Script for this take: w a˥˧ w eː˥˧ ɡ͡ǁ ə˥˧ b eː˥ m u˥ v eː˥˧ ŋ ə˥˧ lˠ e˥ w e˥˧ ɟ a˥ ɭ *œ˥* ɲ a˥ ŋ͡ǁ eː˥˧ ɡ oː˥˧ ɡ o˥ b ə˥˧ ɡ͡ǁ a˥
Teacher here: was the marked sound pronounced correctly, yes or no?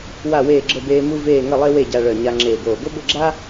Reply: no